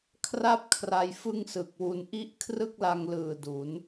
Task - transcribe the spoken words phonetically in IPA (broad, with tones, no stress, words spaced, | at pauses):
kʰra˦˥p̚ kʰra˧jfɯ˥˩ŋsɯ˨˩k̚wu˧n ʔi˦˥ʔ kʰrɯ˥˩k̚la˧ŋlɯː˨˩ du˩˦n